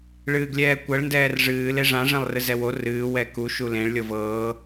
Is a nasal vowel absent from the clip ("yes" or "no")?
no